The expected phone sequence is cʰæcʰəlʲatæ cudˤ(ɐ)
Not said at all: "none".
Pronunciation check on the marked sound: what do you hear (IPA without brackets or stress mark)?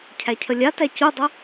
ə